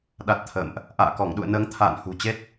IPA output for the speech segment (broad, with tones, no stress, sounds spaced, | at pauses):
ɗ a˨˩ t̚ t̪ʰ ə̰ː˧˨ m ʔ | ʔ a̰ː˧˨ k ɔ˧˩ ŋ ɗ ṵ˧˨ ə̯ n əː˨˦ ŋ t̪ʰ a̰ː˧˨ n h ṳ˨˩ t͡ɕ e˦˥ t̚